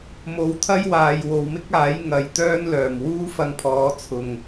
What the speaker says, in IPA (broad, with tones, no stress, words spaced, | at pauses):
mo˨wt̪ʰɐ˥jwaː˨j wo˨wmɪ˥k̚aː˨˥j ŋɐ˨˧jt̪œː˥nlœː˨˩m wuː˥fɐ˧ŋpʰɔː˨˥ t͡sʰʊ˨ŋ